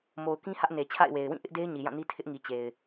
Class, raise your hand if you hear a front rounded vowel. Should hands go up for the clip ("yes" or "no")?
no